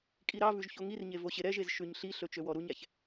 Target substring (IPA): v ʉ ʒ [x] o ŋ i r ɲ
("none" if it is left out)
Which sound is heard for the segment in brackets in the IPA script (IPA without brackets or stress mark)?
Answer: ç